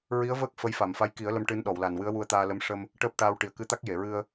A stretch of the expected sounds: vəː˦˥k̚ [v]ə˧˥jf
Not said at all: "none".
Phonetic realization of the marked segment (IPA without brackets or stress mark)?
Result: f